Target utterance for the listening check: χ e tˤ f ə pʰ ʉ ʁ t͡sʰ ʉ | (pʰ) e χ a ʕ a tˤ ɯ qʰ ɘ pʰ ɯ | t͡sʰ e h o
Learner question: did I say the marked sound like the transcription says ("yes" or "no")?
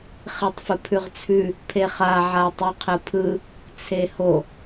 yes